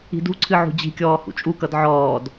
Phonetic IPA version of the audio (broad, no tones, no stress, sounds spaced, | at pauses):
i̤ d ṳ ǀʰ ɨ ʕ ṳ d͡ʑ i̤ kʲ ɔː h ṵ t͡ʃʼ u k ʌ d ʕ ɔː d